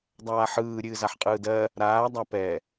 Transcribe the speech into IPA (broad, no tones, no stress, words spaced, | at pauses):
dˤaːħɯː ɾʲɨːzaħqʼɯːdɜ | ɾaː dˤapɛ